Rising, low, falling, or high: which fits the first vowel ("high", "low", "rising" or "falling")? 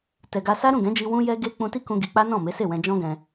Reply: low